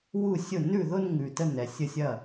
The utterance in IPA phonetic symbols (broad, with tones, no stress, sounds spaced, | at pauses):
w u˥˩ sʲ ʊ˥˩ n ʉ˥˩ ð ʊ˥˧ n ŋ ʉ˨ t ə˥˩ n ɛ˨ sʲ ə˥˩ sʲ ɐ˥˩